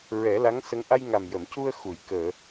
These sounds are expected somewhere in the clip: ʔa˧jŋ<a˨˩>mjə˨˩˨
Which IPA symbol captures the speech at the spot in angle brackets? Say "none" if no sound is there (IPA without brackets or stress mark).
a˨˩